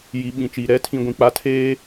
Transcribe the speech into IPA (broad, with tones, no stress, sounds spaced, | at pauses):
j i˨ ɓ ĩ˨ t͡ʃ iː˨ ɾ ɛ˨˦ tʰ ĩ˨ ɡʷ ĩ˨ k͡p a˨˦ tʰ eː˦